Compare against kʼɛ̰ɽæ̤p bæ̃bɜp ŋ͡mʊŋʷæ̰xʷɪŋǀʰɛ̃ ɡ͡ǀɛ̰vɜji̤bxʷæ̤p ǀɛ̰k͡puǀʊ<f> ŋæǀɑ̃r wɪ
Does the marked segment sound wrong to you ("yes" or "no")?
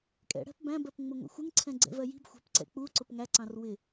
yes